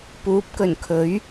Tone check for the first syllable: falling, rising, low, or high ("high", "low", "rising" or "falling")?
rising